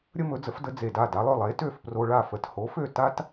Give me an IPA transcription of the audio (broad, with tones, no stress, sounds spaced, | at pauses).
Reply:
ɾʲ ə˥ m ɵ˩˥ d͡z ə˩˥ f d ə˩˥ d͡z e˩ d a˥˩ d a˩˥ lˠ ø˩ lˠ e˩˥ t ø˥˩ f p r o˧ ɭ a˥˩ f ə˩˥ t h o˩˥ f ø˥˩ t a˥ t